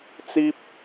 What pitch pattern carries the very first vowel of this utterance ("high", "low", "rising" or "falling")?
high